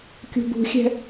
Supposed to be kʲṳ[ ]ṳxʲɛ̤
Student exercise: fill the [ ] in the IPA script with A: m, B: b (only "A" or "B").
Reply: B